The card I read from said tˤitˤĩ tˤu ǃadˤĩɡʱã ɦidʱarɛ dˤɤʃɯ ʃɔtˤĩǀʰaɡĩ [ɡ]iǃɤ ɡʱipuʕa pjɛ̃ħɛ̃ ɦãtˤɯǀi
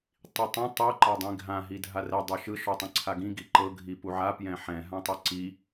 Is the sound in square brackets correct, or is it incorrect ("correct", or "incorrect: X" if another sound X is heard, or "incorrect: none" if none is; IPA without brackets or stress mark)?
correct